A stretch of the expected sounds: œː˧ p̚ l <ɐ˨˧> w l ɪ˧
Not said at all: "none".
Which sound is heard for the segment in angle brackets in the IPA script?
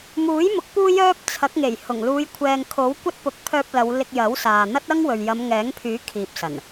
ɐ˨˧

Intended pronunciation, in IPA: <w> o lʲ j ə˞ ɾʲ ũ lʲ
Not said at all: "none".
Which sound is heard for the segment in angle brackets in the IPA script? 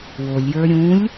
w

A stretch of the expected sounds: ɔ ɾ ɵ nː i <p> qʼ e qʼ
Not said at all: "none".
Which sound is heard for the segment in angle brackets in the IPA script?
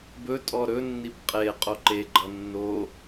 p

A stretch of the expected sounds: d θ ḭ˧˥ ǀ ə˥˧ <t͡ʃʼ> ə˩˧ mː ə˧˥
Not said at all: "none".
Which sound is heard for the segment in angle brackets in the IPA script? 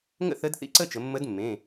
t͡ʃ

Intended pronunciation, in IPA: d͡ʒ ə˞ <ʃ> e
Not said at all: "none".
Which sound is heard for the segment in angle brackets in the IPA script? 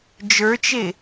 t͡ʃ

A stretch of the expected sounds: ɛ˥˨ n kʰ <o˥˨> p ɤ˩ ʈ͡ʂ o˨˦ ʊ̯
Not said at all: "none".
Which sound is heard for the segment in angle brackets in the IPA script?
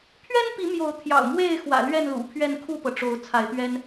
u˥˨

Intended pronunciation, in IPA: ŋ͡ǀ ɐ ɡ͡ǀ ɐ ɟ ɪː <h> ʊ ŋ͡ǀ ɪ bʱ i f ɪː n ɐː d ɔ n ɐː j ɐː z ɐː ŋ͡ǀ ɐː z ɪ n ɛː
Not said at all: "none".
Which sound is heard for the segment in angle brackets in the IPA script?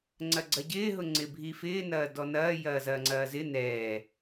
ɦ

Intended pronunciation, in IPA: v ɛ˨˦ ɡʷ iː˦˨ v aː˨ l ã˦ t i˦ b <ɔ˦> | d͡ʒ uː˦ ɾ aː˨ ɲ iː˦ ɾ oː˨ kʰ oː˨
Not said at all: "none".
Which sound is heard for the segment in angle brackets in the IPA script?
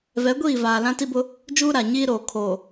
ʊ˦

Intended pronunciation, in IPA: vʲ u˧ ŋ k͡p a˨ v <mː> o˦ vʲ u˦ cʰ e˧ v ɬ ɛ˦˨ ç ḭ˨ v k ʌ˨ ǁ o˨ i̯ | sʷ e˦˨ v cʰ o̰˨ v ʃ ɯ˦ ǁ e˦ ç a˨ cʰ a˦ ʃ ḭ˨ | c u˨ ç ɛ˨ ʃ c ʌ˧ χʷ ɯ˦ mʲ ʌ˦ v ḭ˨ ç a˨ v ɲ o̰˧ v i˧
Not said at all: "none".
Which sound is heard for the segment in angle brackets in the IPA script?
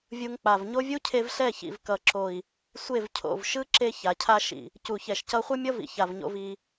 ɲ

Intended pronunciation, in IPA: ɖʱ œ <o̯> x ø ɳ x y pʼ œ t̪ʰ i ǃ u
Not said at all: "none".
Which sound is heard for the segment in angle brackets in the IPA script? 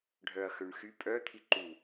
ɐ̯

